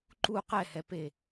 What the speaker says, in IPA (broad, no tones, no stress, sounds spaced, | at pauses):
ǃ u q ɛ h ɛ p e